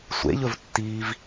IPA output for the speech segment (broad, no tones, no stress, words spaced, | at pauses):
sʷḛʎɵvtːiːv